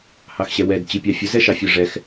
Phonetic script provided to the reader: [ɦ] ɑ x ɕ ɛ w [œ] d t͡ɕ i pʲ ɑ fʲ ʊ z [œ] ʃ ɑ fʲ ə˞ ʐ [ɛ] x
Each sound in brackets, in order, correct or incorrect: incorrect: h, incorrect: ɛ, incorrect: ɛ, correct

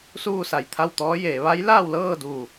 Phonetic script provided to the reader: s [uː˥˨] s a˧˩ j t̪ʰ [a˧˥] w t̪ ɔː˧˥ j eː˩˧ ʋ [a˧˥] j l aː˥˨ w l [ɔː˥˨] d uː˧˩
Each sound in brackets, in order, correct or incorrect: correct, incorrect: a˥˨, correct, incorrect: ɤː˥˨

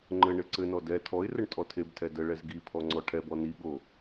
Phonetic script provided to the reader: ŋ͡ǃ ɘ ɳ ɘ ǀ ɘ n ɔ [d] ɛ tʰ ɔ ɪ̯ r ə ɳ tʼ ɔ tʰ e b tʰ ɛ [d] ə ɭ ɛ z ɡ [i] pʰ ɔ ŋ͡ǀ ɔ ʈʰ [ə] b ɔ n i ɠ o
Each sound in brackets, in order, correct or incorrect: correct, correct, correct, incorrect: ɛ

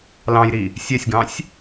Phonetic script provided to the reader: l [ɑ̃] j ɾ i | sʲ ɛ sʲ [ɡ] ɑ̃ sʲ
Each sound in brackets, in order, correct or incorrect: correct, correct

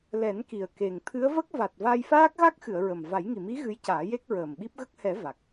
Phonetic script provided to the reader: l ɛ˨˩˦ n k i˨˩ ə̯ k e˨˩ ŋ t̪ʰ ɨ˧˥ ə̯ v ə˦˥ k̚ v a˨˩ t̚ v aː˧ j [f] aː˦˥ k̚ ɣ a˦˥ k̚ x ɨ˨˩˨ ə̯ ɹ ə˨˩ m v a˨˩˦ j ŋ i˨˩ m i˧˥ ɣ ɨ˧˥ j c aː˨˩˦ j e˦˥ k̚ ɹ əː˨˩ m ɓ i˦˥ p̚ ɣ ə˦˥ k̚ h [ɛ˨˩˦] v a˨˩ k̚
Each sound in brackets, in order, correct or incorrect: correct, correct

